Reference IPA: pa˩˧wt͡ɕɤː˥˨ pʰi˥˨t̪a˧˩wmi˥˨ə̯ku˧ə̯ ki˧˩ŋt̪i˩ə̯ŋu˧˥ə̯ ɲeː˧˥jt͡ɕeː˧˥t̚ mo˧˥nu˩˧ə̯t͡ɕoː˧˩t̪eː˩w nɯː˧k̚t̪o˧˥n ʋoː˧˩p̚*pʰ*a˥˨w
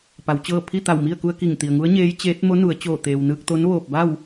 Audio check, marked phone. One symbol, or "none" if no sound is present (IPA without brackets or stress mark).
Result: b